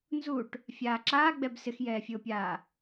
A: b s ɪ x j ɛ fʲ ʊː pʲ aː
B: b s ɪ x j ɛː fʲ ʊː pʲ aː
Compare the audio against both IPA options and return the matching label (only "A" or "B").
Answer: B